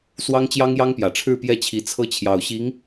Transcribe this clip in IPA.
swɑ˥ŋt͡ɕjɑ˥ŋjɑ˥ŋpjä˨˩ ʈ͡ʂʰɻ̩˥˧pjɛ˥˩t͡ɕʰi˧˥ t͡sʰɤ˥ t͡ɕʰjɑ˨˩ʊ̯ɕi˧˥ŋ

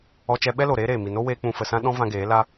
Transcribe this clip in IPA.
ɔ˧t͡ʃɛ˧ ɓɛ˦lo˨ ɾeː˦ɾeː˨mi˨ no˦weː˧ k͡pũ˨fə˨sã˧ ɗɔ̃˧ vã˧ɡeː˨˦ la˧

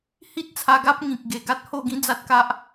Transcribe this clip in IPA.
hi˦t̚ t͡sʰa˧ɡa˦p̚ ŋĩ˨k̚ɡe˨˩ ɡa˦t̚ho˥˧ɡĩ˦d͡za˦t̚ ka˦ʔ

